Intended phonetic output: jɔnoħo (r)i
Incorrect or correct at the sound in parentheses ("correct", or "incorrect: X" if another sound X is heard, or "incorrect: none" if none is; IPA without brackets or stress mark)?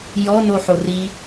correct